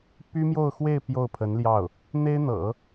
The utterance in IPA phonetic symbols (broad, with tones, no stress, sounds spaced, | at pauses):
p y˥ m j o˥˧ ʊ̯ x w e˥˧ ɪ̯ p j o˥˩ ʊ̯ pʰ ə˧˥ n l j ɑ˥˩ ʊ̯ | n̪ e˥ ɪ̯ n̪ ɤ̰˨˩˦